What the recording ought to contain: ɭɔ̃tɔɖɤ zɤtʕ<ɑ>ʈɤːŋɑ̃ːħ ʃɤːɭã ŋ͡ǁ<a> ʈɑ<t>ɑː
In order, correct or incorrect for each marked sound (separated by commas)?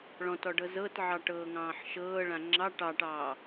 correct, incorrect, incorrect